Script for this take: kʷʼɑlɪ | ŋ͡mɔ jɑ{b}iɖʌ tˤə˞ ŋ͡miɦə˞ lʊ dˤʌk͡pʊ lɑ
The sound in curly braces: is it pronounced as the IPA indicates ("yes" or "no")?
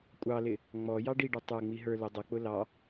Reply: no